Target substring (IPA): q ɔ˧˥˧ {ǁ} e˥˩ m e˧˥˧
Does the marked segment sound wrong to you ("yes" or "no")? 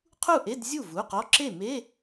no